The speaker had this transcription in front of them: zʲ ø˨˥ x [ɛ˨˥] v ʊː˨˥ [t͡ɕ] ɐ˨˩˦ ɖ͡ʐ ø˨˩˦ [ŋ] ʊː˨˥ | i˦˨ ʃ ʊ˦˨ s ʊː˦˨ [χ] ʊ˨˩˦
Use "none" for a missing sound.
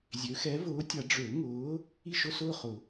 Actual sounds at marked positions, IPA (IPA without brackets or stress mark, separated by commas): ɛ˨˥, tʲ, ŋ, χ